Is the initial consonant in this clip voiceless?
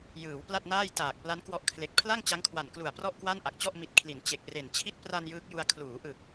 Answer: no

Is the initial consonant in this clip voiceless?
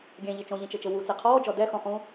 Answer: no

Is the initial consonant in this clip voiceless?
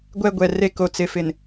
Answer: no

